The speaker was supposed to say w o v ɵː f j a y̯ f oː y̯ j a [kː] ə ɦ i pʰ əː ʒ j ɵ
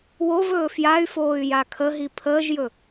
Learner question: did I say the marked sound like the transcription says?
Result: no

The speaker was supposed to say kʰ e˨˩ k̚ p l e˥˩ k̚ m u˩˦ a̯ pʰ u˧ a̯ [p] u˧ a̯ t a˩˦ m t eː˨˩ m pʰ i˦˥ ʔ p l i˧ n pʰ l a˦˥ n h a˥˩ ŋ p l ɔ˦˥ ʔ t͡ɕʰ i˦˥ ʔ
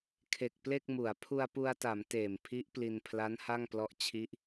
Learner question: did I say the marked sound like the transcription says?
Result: yes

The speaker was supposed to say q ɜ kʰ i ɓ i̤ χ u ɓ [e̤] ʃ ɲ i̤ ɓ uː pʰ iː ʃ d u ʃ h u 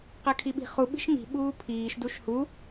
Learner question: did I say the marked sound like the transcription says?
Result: no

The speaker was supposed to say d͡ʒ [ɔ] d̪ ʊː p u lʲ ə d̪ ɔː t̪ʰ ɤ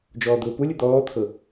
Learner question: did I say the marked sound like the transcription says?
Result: no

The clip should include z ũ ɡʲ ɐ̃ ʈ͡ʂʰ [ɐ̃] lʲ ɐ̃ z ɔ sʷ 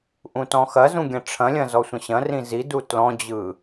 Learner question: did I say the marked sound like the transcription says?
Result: yes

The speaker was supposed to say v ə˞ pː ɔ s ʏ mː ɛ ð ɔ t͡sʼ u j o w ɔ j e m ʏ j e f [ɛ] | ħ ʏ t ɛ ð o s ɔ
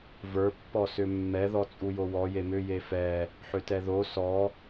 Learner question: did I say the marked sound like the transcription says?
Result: yes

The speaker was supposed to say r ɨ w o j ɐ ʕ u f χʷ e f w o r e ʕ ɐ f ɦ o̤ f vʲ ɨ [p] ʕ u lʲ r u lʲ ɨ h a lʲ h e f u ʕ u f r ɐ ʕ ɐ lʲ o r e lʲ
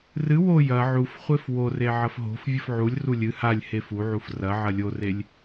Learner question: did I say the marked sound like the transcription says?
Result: no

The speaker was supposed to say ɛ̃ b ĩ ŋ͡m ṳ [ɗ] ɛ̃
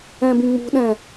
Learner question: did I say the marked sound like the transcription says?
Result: yes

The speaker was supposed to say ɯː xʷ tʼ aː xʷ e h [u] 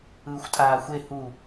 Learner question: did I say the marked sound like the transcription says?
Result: yes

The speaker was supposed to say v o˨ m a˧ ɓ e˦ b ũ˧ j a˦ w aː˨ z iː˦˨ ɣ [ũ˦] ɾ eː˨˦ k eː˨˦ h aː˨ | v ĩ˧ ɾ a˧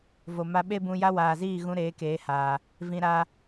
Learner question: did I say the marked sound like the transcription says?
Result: no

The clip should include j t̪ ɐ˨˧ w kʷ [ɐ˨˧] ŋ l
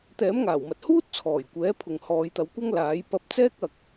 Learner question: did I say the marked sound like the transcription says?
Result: no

